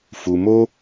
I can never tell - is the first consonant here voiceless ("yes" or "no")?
yes